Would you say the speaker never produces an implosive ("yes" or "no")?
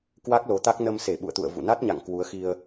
no